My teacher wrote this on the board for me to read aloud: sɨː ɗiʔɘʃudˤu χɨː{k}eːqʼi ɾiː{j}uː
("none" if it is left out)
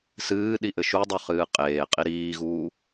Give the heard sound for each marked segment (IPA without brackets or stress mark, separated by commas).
qʼ, ɣ